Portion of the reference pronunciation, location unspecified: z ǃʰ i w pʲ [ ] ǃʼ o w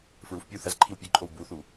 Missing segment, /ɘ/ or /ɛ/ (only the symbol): ɘ